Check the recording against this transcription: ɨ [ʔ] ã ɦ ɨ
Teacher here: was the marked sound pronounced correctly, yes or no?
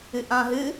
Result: yes